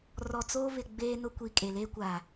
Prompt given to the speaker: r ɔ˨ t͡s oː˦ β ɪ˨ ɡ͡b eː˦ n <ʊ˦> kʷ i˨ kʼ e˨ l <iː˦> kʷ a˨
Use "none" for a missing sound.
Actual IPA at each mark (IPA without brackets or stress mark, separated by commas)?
ʊ˦, eː˦